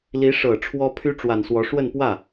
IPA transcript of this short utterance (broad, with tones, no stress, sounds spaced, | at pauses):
l i˧˥ ʂ ɤ˨˩ ʈ͡ʂʰ w ɔ˥ pʰ y˥ ʈ͡ʂ w a˨˩ n s w ɔ˧˥ ʂ w ə˥˧ n p w ä˥˩